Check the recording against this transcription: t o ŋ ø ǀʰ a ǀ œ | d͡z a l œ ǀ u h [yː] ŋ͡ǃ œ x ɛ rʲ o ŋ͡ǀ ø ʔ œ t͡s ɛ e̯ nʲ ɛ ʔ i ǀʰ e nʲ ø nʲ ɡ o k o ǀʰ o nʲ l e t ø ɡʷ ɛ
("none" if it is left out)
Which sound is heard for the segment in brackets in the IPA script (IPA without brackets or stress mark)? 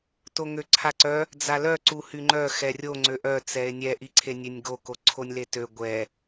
y